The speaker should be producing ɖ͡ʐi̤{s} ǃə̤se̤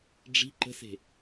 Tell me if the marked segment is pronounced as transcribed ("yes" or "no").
no